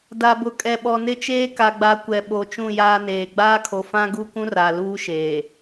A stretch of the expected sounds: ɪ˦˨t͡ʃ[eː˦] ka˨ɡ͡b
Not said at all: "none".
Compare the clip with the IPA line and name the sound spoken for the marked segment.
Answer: eː˦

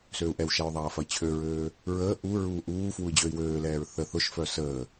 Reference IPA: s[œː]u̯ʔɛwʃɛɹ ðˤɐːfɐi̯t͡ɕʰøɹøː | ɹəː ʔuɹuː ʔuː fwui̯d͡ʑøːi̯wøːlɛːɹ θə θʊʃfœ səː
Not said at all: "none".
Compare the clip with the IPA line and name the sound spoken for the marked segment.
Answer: øː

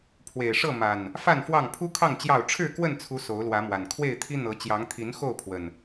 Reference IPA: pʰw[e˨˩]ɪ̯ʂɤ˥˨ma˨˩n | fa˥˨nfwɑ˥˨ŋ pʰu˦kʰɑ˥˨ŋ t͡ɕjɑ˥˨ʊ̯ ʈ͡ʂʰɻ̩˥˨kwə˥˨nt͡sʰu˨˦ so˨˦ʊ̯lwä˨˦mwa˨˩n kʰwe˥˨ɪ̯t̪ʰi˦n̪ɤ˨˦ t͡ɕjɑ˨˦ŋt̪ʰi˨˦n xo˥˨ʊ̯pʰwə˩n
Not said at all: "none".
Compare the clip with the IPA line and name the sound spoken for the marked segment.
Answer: e˨˩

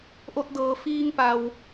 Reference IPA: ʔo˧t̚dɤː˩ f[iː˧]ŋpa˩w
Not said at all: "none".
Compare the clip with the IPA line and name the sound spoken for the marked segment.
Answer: iː˧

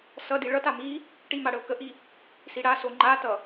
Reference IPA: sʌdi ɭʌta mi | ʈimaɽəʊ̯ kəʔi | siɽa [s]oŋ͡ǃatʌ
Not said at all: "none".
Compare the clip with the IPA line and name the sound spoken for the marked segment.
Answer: s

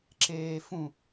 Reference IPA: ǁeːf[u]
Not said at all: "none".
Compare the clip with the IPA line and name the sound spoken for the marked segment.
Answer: ũ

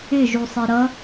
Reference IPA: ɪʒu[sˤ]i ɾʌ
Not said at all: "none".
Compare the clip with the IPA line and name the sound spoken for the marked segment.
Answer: sˤ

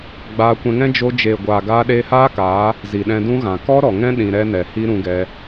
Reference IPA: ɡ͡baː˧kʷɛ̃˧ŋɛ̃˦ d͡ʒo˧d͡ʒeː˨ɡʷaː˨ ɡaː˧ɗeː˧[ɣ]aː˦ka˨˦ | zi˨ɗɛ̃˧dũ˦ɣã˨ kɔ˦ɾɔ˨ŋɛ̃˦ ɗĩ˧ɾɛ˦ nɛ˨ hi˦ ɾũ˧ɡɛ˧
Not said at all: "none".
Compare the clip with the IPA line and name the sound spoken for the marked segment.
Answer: h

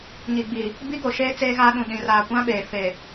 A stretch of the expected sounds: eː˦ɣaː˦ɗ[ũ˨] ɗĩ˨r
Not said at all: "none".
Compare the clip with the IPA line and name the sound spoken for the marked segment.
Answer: ũ˨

